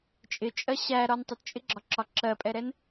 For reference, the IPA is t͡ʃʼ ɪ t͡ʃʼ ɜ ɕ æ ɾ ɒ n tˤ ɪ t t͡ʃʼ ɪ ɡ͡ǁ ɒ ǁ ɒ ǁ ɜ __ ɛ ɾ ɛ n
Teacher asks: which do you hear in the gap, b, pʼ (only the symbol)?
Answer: pʼ